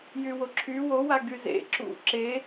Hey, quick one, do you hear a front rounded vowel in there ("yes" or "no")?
yes